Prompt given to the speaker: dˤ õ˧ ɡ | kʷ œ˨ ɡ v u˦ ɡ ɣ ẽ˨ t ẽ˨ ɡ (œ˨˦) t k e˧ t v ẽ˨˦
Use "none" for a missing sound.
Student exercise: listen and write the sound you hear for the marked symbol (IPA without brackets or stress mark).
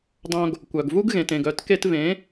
œ˨˦